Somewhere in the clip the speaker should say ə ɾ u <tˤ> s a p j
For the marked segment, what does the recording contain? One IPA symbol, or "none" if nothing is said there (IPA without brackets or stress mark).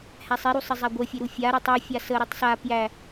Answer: tˤ